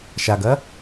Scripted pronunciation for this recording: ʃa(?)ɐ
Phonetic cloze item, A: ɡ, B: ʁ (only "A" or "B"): A